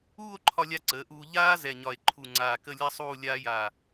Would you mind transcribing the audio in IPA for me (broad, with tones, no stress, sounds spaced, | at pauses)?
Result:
uː˥˧ o̯ ǃʰ ɒ˧ lʲ a˧ ǀ əː˩˧ ʔ uː˧ ʎ aː˥ z ɛ˧˩ ɲ ɒ˧˩ e̯ ǃʰ u˧˩ ŋ͡ǀ aː˧˩ k ə˥˧ lʲ a˥ sˤ uː˥˧ lʲ aː˥ j aː˧˩